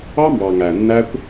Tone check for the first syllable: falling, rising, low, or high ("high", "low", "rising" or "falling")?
high